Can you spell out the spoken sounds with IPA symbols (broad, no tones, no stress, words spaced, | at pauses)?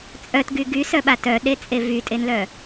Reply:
t͡sʼœtɡy ɡysœɓa tœɗet͡sʼe vytʼenlœ